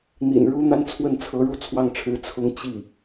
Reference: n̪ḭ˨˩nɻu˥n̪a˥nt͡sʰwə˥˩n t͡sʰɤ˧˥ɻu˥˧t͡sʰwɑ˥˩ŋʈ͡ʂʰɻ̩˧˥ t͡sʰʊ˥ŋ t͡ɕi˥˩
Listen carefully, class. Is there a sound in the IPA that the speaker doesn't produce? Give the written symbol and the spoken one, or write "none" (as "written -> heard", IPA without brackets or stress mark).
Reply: none